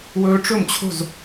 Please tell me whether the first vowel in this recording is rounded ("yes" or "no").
yes